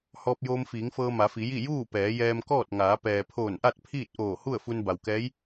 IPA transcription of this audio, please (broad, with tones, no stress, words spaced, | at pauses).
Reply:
hɔː˧p̚joː˧m fiː˩˧ŋfɤː˧ ma˩˧fi˩˧ji˥˨ juː˥˨ pɛː˩˧jɛː˧mkɔː˥˨t̚ŋaː˩˧ pɛː˩pʰoː˧˩nʔa˥˨t̚ pʰiː˥˨t̚ʔoː˧˩ hu˥˨ə̯fu˧n ba˩wkɛː˧˥j